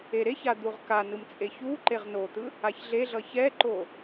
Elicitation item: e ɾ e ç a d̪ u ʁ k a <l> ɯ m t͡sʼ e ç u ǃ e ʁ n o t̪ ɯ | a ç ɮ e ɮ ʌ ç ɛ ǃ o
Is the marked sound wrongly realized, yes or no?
yes